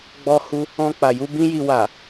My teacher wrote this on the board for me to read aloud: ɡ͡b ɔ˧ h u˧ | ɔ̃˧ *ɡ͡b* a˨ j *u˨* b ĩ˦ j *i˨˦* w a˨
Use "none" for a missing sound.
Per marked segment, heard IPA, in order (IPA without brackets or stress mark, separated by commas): k͡p, u˧, i˧